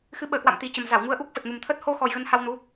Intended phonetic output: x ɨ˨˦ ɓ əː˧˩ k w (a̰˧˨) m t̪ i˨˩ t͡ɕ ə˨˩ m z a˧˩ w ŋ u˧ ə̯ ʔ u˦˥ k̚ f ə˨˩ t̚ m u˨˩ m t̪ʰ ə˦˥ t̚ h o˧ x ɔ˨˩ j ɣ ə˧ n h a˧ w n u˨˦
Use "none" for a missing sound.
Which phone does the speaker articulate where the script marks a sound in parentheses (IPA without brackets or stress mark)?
a̰˧˨